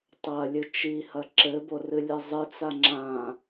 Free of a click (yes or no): no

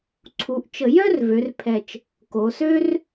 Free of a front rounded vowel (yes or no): no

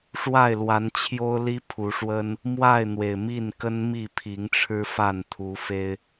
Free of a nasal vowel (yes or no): yes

